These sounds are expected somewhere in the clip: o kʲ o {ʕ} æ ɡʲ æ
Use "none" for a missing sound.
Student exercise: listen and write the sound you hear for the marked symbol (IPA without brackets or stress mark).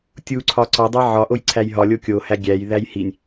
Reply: h